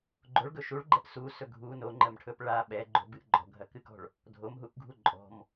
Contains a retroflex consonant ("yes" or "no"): yes